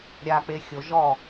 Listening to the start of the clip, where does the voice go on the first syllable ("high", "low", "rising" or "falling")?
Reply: low